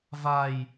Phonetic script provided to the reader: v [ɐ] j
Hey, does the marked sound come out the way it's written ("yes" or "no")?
no